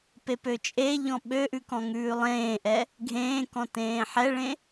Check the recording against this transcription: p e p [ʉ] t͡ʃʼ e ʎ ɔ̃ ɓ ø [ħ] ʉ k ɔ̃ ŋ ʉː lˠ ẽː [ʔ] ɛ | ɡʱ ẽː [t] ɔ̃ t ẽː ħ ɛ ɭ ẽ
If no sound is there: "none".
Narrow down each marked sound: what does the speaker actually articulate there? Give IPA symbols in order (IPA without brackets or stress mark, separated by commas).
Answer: ø, ʔ, ʔ, k